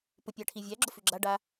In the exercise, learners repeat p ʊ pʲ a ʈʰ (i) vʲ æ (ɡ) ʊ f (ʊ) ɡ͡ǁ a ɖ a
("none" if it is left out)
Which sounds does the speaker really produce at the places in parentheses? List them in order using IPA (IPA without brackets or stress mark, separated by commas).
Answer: i, ɡ͡ǁ, ʉ